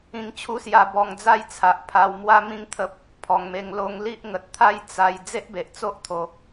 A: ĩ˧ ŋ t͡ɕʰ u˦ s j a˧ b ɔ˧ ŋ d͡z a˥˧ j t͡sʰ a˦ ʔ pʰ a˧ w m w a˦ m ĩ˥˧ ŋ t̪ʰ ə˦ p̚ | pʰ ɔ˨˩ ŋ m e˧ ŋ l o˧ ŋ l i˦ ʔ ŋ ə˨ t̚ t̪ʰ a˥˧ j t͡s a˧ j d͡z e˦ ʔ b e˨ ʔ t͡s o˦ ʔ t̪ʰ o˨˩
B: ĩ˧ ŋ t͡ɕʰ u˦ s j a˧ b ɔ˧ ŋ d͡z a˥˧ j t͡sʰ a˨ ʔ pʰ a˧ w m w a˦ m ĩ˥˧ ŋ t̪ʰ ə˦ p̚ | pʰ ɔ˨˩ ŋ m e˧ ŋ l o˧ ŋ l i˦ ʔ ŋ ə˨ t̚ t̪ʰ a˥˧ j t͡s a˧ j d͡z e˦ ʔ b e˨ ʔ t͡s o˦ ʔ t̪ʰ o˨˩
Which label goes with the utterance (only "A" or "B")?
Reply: B